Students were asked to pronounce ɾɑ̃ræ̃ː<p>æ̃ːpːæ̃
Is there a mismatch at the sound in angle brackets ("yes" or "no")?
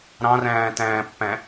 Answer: yes